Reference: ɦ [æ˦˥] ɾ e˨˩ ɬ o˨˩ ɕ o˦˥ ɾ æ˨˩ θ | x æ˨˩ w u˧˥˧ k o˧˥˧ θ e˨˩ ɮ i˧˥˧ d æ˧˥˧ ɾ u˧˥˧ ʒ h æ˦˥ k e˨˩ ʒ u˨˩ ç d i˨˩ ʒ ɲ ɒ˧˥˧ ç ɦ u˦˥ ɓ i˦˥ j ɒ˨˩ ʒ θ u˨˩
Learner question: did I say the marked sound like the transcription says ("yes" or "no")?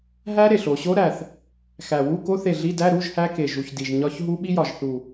yes